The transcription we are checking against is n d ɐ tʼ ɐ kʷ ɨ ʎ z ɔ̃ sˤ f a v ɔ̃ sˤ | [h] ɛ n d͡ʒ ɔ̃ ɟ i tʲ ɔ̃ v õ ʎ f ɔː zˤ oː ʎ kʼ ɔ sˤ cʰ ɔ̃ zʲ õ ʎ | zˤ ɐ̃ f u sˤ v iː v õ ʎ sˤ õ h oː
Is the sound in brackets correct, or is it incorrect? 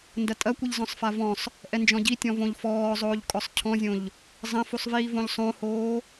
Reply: incorrect